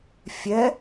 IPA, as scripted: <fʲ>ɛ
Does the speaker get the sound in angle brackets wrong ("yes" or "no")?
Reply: no